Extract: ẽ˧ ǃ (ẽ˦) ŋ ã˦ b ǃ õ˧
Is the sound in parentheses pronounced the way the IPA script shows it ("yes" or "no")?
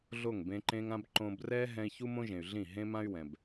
yes